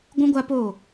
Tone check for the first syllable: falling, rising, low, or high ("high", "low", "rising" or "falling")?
high